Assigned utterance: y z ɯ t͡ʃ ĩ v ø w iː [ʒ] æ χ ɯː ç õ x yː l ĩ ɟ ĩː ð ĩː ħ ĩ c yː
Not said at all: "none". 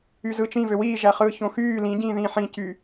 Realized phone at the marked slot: ʒ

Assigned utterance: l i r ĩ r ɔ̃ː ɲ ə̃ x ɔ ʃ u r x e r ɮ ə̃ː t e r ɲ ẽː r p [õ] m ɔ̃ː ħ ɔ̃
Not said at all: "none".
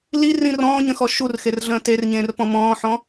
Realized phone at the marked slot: ɔ̃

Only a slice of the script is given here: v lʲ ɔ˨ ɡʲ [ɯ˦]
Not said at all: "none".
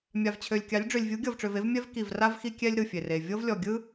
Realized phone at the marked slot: ɯ˦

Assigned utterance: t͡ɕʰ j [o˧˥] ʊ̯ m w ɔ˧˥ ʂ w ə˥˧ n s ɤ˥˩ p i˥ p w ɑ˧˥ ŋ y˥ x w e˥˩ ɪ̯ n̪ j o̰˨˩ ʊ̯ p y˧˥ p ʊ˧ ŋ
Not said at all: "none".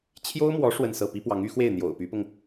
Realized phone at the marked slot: o˥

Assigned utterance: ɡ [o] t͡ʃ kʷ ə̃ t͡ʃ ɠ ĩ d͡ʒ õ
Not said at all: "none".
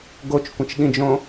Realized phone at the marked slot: o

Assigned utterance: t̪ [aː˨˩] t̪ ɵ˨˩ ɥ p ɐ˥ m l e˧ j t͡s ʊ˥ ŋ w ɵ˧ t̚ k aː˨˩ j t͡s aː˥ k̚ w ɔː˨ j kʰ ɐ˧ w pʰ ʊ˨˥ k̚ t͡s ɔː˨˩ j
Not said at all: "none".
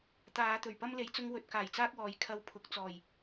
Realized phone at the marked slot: aː˨˧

